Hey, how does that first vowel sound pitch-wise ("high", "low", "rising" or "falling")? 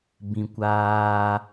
low